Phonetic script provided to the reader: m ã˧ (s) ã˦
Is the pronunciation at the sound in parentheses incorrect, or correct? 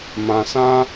correct